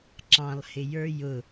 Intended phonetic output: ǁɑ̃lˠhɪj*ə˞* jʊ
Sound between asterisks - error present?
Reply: no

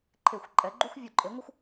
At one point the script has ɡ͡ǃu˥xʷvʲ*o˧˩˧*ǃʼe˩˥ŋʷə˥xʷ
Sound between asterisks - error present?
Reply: yes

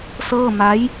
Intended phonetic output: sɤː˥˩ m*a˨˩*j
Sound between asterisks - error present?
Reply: yes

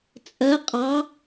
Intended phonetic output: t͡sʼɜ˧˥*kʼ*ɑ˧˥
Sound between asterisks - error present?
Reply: yes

